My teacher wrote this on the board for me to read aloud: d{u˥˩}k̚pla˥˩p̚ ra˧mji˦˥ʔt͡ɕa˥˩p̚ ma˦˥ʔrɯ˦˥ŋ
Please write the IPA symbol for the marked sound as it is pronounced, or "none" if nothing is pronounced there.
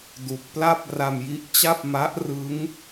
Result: u˨˩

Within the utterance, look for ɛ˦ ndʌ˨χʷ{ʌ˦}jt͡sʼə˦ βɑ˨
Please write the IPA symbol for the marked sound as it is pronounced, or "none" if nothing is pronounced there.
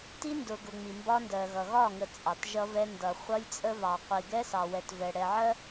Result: ʌ˦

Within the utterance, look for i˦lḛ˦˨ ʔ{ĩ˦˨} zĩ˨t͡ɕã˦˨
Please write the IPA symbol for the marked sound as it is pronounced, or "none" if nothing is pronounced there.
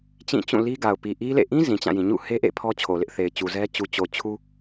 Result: ĩ˦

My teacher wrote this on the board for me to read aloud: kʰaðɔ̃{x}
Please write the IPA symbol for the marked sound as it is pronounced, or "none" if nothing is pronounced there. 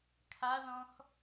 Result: x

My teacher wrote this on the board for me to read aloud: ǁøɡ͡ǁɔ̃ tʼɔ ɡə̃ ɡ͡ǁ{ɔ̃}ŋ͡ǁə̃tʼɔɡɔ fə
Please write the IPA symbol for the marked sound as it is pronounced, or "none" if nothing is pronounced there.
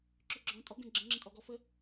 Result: ə̃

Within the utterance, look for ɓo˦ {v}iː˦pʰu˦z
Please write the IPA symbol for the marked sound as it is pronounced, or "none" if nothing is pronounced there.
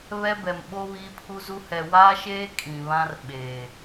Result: β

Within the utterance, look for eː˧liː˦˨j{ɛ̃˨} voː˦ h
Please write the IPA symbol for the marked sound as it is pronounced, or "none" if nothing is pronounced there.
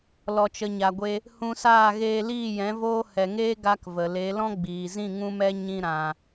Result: ɛ̃˨˦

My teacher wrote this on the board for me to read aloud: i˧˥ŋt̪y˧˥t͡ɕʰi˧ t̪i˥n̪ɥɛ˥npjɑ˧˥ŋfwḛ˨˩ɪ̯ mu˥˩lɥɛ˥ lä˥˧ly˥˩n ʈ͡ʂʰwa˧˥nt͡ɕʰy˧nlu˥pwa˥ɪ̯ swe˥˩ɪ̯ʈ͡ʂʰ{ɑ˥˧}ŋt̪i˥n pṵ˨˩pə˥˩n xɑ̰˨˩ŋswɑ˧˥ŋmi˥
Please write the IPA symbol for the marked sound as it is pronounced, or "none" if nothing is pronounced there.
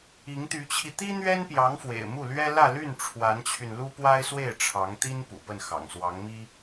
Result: ɑ˧˥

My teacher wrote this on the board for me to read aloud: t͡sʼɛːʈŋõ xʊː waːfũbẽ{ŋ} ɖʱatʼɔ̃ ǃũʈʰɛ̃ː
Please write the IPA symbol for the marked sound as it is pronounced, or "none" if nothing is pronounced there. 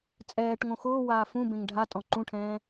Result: ŋ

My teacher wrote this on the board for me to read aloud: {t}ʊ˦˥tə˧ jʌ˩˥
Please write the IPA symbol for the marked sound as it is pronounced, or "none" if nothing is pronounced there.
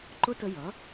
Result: ǃ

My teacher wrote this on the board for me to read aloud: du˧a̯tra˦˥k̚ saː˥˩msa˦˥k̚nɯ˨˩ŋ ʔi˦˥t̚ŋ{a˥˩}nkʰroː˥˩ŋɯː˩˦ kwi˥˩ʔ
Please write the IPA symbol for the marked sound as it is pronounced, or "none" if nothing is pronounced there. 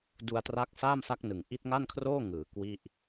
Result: a˥˩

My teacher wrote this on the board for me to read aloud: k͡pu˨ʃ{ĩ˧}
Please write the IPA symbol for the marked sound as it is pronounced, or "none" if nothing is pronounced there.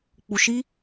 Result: i˧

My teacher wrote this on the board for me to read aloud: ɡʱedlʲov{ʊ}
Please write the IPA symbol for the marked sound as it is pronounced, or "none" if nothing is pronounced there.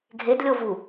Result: u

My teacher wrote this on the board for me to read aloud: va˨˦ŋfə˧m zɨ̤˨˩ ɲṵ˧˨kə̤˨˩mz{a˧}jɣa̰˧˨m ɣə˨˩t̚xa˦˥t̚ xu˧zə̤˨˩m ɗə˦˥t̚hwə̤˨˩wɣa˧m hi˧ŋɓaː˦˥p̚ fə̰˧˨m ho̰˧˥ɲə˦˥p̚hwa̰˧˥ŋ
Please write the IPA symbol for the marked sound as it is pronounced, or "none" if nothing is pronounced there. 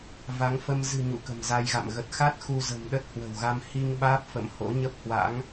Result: a˧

